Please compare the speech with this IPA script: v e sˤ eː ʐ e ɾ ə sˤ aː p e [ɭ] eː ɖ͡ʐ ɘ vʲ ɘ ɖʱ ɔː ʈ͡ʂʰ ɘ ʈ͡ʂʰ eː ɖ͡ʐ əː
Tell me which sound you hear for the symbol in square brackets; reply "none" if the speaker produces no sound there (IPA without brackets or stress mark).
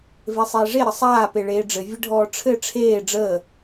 ɭ